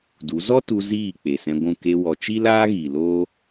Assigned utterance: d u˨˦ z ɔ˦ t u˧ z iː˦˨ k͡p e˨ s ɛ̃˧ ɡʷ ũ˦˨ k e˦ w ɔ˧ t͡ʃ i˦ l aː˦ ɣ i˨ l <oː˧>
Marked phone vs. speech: incorrect: oː˦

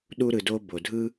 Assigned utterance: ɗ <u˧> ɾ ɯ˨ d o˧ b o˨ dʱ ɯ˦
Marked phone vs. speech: correct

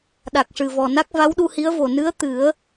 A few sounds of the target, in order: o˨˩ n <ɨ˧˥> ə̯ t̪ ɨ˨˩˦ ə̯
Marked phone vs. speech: correct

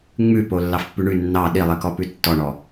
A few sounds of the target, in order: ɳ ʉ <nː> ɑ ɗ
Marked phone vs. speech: correct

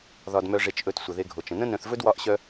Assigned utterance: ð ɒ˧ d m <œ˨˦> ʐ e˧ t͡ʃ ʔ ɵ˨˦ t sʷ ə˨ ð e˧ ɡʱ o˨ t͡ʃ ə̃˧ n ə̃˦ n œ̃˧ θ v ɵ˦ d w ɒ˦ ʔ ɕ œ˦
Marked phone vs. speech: incorrect: œ˧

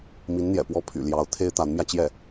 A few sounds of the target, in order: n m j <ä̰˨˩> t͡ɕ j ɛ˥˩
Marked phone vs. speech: incorrect: ä˧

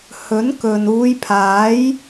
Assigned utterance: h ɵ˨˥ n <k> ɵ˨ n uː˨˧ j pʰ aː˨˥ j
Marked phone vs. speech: correct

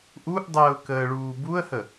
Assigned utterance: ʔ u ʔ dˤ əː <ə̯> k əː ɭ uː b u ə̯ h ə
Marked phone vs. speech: incorrect: ʊ̯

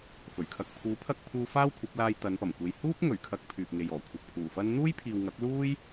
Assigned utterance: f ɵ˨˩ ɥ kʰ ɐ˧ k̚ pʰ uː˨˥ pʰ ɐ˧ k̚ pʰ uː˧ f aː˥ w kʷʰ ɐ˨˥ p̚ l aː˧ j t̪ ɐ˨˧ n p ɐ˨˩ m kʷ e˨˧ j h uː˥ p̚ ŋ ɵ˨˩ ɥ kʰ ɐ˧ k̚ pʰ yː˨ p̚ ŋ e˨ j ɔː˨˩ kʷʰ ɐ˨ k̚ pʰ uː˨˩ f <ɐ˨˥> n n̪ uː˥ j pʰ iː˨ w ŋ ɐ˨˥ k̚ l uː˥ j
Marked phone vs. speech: incorrect: ɐ˥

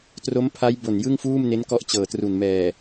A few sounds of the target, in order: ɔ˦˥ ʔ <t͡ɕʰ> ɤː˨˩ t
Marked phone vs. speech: incorrect: t͡ɕ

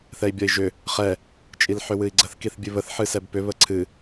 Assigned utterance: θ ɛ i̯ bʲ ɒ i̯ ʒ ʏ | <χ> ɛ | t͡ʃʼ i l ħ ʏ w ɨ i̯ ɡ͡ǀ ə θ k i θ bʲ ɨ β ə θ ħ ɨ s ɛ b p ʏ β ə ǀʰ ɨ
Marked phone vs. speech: correct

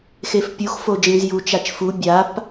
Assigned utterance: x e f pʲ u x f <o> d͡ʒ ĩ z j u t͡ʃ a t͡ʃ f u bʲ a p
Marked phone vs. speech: correct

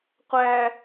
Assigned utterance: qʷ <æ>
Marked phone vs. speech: correct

